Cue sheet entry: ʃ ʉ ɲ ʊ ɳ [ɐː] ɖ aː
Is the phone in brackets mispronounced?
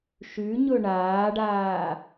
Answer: yes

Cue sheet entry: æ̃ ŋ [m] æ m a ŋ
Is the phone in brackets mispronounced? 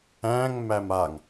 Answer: no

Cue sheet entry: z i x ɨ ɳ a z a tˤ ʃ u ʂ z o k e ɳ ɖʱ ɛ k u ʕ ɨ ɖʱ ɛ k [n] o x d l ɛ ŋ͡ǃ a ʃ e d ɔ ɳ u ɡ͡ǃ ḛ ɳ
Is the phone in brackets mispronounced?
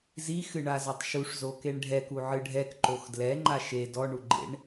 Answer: yes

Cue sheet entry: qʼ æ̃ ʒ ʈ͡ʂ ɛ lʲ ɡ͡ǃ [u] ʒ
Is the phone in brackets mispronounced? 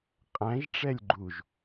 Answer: no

